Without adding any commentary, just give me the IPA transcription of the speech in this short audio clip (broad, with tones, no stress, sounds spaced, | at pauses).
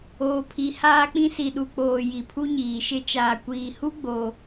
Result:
oː˨ pʰ i˨˦ h aː˦ k͡p ĩ˦ s i˨ ɗ u˨ k͡p oː˨ j i˨ pʰ u˦ ɲ iː˨ ʃ ɪ˦ t͡ʃ aː˨ kʷ iː˨ h u˦ ɡ͡b o˨